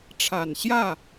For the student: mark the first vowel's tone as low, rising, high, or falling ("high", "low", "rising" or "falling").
low